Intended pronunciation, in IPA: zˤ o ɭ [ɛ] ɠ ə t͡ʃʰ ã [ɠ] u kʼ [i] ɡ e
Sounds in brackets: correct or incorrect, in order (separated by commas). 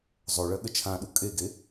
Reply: incorrect, incorrect, incorrect